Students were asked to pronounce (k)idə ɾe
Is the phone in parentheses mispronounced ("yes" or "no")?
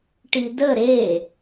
yes